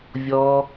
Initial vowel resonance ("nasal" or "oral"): oral